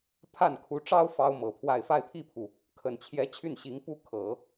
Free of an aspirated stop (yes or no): no